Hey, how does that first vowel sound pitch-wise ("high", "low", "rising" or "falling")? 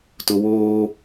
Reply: low